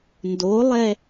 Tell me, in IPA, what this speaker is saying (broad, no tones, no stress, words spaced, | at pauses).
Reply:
ndolˠɛ